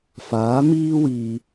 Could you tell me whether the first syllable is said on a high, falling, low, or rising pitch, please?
rising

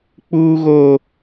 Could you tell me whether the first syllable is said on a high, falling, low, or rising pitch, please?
high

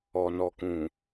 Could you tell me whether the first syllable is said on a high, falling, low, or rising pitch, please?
low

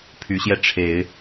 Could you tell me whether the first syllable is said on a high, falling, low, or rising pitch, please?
rising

